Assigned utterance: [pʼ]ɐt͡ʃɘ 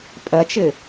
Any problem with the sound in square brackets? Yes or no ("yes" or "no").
no